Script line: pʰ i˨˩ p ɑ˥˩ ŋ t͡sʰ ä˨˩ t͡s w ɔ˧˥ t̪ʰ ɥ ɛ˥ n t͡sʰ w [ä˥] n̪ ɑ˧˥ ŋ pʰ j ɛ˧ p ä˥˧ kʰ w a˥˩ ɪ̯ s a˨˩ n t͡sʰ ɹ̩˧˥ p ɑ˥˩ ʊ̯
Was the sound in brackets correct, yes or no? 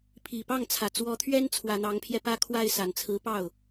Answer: no